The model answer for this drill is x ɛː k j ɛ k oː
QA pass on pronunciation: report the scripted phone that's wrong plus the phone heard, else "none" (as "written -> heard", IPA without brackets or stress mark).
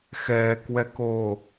j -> w